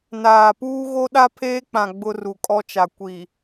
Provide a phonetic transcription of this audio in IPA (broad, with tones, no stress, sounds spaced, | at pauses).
n aː˨ p uː˦ ɣ o˦ ɗ a˦ pʰ eː˦ k͡p ã˨ ɡ͡b ʊ˦ r u˨ kʼ ɔ˦ t͡ʃ a˨ kʷ i˨